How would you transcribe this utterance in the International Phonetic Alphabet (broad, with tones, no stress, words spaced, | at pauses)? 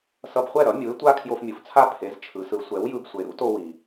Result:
sʌ˧bχʷɛ˥˩ɾʌ˩˥ mʲu˩˥e̯tʷa˥ kʰjo˧fmʲu˩ft͡sʰa˥˩ pʰe˩˥z t͡ʃʰɯ˩˥sɯ˩˥ sʷɛ˩˥w jɯ˧bsʷe˩˥ ɾṵ˥to˧wi˩